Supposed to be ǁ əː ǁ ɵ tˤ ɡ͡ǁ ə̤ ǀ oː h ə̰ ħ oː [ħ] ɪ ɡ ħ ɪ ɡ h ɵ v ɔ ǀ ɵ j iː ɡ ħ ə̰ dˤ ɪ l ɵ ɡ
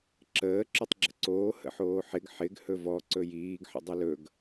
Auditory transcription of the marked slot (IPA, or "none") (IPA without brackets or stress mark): ħ